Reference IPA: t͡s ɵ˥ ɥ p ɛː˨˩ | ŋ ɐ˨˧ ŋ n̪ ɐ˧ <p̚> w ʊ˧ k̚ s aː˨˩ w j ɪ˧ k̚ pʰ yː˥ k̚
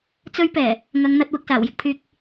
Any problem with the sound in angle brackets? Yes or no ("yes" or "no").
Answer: yes